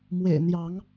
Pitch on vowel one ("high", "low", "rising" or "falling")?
low